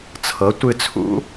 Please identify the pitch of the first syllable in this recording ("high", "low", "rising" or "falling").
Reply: rising